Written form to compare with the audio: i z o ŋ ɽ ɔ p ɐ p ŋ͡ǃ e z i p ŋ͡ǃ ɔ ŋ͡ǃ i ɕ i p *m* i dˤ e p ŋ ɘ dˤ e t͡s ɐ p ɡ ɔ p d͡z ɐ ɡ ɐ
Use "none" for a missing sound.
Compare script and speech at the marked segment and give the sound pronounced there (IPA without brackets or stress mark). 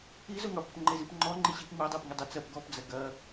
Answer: m